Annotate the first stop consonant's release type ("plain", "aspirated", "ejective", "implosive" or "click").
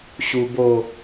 plain